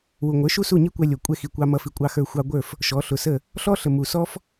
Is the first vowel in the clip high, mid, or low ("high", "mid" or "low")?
high